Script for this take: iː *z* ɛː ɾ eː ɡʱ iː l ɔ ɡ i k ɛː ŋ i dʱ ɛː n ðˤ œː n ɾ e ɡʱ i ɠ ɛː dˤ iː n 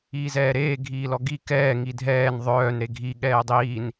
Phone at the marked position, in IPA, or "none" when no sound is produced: z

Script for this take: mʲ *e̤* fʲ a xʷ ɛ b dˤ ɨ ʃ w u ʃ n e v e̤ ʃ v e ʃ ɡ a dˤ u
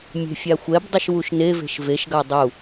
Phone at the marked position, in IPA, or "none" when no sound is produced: e̤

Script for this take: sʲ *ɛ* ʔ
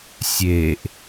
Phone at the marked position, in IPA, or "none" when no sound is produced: e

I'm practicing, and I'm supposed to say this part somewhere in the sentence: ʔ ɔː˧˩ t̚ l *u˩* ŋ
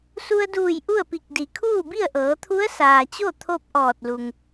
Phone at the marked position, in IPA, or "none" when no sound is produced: u˩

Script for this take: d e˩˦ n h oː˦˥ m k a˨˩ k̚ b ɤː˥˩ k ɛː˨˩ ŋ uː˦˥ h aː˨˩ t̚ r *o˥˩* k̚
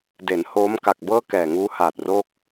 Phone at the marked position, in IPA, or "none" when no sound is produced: o˥˩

